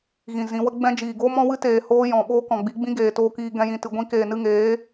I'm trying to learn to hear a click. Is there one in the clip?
no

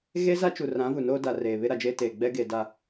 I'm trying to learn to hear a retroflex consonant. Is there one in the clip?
no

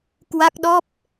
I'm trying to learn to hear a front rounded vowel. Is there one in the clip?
no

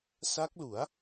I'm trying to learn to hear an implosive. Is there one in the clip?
no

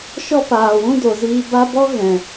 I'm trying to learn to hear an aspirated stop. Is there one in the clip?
no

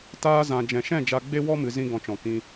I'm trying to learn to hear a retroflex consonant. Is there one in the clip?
no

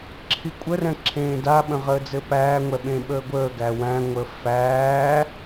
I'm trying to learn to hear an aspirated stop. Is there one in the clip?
yes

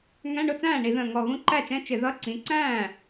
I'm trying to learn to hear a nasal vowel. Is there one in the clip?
yes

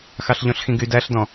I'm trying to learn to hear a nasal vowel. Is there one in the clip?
yes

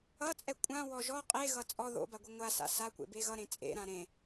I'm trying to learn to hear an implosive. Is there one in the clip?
no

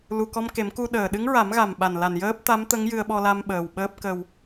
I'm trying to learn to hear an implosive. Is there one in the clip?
yes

